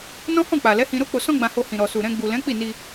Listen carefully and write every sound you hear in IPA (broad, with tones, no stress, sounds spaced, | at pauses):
n ɔ̃˦ h ɔ̃˦˨ k͡p a˨ l ɛ˨˦ h ĩ˧ ɾ o˦ k͡p o˧ s ɔ̃˦ ɡ͡b ã˧ h o˧ h ĩ˨ ɾ ɔ˨ s u˨ ɾ ɛ̃˧ ɡ͡b u˨ l ɛ̃˨˦ k͡p i˦˨ n i˧